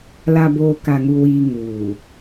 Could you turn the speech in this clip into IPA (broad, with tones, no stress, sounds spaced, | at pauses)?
l a˨ b oː˨ k a˨ ŋ u˨ w iː˨ ŋ uː˨